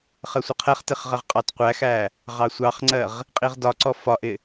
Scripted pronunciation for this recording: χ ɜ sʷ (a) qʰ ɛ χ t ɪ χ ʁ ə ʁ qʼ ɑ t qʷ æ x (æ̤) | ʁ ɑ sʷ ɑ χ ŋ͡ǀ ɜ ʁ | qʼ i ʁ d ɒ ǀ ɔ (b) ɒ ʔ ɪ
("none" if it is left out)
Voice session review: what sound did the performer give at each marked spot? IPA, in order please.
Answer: ə, æ, f

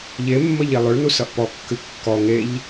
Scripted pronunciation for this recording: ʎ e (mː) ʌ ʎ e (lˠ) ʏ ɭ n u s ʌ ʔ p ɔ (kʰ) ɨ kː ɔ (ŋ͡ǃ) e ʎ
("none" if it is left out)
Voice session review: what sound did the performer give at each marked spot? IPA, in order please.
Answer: mː, lˠ, kː, ŋ

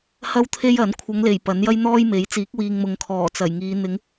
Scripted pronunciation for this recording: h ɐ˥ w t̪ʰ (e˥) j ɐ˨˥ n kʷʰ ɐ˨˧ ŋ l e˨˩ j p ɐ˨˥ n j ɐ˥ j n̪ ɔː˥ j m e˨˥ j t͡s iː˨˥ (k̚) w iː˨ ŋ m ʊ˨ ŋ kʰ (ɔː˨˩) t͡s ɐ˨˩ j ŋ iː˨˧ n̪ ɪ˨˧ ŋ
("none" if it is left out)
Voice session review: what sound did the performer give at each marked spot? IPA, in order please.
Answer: e˥, k̚, ɔː˨˩

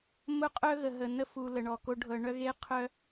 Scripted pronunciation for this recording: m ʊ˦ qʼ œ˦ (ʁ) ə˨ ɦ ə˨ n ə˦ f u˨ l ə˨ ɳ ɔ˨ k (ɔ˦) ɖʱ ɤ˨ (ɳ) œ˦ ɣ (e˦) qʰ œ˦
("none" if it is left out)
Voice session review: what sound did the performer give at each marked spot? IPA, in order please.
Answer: ɣ, o˦, ɳ, e˦

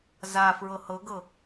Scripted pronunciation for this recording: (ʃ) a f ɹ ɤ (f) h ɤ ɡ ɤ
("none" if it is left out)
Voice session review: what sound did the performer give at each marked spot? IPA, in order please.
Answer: z, none

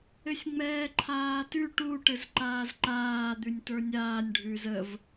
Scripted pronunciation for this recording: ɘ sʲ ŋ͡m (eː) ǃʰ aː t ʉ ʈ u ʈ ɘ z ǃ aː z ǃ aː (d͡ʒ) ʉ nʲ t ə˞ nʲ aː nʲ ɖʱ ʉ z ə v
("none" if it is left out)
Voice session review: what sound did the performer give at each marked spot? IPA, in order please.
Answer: ɛː, d̪

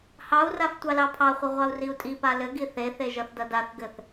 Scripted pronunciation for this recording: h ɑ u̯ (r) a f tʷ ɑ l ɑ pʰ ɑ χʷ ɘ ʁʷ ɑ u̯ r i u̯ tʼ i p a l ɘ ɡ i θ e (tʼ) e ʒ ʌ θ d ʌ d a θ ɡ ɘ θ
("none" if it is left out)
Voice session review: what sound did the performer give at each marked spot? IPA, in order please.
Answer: r, θ

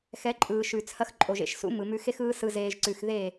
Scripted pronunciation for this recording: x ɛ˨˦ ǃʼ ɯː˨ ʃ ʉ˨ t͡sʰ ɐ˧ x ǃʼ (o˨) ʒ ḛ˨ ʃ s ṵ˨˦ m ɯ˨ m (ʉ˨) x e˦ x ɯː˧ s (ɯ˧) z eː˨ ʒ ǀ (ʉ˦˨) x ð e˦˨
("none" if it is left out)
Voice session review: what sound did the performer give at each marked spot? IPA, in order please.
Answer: o˨, ʉ˧, ɯ˨, ʉ˨

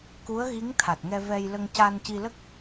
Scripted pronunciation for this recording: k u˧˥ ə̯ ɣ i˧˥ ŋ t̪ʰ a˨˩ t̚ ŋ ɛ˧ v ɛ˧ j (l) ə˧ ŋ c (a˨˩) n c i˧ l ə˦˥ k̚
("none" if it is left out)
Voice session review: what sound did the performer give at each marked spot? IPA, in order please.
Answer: l, a˧

